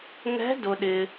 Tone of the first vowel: rising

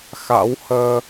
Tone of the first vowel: rising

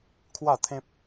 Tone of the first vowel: falling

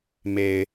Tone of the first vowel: low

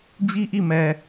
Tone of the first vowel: high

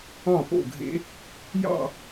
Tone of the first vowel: falling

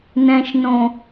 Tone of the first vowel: low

